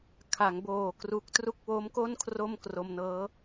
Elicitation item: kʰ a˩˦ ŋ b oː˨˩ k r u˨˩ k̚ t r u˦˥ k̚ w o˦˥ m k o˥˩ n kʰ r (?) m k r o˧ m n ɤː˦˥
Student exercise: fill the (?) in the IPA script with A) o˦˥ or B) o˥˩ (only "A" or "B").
B